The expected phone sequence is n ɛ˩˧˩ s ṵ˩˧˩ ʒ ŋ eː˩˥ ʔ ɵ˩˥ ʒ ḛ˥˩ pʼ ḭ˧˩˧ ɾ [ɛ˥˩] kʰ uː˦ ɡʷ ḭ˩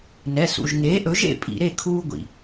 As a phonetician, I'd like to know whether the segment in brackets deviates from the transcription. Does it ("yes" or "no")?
yes